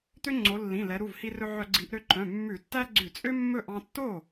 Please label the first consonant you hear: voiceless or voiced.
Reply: voiceless